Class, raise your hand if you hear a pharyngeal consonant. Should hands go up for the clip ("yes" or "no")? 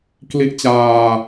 no